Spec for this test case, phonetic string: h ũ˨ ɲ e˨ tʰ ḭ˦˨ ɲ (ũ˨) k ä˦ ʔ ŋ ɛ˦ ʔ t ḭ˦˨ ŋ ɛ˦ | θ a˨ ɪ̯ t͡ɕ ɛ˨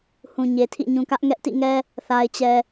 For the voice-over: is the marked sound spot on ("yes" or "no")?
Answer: yes